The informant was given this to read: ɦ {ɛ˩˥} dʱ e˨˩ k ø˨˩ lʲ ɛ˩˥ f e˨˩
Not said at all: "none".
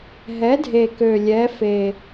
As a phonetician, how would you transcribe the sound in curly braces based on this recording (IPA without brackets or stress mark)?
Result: ɛ˩˥